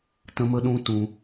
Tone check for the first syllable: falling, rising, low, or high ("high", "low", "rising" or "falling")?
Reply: high